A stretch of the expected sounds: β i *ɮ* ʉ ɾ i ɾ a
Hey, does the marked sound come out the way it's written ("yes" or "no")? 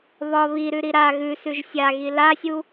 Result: no